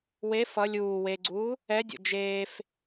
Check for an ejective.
absent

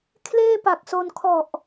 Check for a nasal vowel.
absent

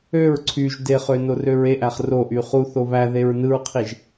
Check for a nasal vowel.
absent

